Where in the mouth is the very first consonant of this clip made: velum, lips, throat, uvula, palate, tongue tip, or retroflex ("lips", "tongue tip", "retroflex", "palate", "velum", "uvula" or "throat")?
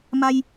lips